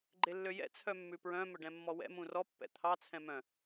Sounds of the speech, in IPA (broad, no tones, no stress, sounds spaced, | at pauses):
ɡ͡ǃ e lː ø j ɛ̰ t͡sʰ œ mː ʉ p ɹ œ̃ m ɵ ɖ ɛ̃ mː ɔ w ɛ̰ m ũ r ɔ pː ɛ̰ t̪ʰ ɑ t͡sʰ ɛ̃ m œ̃